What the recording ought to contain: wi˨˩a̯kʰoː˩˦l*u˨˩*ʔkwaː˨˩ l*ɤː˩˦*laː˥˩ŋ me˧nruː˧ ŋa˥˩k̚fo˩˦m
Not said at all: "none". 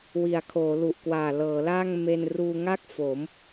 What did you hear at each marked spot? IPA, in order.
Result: u˨˩, ɤː˩˦

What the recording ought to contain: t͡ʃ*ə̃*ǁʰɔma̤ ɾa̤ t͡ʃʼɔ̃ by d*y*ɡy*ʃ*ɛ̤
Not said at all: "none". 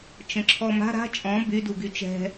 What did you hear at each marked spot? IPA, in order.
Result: ə̃, u, t͡ʃ

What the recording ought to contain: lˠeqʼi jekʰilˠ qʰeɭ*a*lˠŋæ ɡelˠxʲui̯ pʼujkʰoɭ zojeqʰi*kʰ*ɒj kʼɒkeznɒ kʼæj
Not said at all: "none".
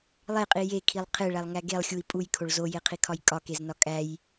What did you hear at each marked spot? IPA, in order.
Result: æ, kʰ

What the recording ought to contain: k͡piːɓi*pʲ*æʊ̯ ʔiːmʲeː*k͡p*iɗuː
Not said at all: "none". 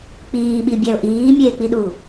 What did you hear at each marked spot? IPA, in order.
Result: bʲ, k͡p

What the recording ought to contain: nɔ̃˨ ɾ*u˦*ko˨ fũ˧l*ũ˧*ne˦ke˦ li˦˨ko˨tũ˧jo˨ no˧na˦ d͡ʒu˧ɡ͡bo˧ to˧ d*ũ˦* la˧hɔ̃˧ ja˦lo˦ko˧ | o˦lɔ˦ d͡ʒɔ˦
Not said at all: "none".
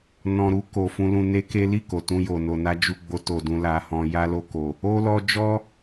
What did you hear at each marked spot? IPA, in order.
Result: u˧, ũ˧, ũ˧

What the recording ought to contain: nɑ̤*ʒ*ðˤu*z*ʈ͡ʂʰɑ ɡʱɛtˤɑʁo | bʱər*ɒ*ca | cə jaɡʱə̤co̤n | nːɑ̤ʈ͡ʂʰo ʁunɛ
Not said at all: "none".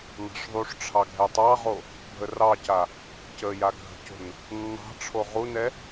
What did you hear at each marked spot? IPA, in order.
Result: ʂ, ʂ, ɑ

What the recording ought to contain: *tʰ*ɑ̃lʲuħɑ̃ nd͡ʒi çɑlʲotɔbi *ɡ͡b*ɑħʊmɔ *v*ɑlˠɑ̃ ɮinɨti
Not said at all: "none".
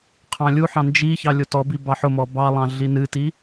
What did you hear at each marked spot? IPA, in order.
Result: qʰ, b, b

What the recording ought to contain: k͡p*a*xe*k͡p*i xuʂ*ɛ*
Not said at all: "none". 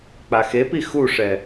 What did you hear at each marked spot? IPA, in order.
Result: a, p, ɛ

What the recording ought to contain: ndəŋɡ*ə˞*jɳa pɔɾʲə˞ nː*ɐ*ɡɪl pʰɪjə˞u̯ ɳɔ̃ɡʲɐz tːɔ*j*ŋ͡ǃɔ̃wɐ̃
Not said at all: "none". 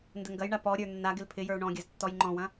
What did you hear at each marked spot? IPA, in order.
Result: ɐ, a, j

